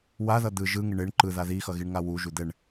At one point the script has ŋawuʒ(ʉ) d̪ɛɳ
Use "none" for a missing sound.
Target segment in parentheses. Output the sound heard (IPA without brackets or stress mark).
u